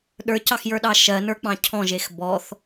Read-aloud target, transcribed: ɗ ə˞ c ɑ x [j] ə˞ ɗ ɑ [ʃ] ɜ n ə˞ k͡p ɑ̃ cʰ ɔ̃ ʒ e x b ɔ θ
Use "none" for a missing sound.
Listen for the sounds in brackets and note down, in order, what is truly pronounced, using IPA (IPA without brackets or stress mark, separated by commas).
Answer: j, ʃ